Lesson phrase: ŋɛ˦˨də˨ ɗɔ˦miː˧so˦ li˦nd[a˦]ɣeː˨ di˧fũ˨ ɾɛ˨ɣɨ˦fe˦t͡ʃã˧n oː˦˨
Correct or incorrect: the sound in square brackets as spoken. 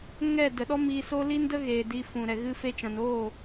incorrect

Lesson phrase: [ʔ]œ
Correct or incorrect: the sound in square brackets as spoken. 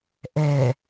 correct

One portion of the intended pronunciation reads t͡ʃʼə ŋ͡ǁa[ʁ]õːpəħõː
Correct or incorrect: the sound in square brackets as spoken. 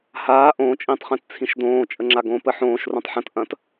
incorrect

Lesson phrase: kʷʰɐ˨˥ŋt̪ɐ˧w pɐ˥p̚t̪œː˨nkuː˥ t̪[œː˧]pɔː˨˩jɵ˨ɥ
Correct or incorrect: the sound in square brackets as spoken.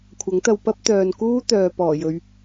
incorrect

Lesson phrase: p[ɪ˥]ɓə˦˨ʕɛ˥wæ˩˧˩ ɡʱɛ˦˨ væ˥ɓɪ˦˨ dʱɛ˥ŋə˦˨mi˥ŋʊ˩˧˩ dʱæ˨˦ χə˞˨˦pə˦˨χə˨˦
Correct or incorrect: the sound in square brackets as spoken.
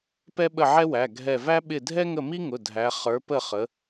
incorrect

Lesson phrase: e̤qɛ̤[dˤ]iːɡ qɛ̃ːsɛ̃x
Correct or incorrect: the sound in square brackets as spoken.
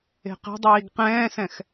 correct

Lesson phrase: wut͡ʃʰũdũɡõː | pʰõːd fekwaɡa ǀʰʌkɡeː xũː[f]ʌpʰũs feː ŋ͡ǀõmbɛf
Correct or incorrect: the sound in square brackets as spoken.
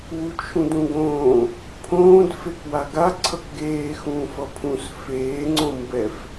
correct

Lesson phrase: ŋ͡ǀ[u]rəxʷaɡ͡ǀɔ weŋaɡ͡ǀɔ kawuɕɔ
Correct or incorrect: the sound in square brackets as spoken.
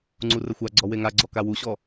correct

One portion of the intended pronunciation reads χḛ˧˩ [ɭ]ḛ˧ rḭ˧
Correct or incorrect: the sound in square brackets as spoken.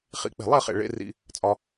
correct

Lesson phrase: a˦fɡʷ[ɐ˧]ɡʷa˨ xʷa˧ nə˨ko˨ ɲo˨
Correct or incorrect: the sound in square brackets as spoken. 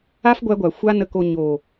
incorrect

